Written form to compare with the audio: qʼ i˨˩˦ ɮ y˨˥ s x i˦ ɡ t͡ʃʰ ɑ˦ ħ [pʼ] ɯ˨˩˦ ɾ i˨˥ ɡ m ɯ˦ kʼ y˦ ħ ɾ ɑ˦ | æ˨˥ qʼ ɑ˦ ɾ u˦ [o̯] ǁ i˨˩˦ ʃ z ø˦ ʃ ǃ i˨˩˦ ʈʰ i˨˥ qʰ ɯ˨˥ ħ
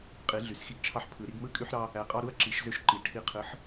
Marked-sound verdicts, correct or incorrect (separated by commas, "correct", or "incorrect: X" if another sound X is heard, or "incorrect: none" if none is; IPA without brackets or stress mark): incorrect: pʰ, incorrect: ɐ̯